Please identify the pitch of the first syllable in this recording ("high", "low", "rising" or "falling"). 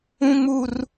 high